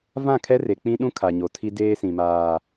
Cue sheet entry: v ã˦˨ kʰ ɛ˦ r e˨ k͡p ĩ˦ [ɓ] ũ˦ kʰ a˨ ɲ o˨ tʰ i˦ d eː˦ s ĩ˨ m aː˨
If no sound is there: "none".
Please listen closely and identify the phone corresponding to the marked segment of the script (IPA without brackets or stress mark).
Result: ɗ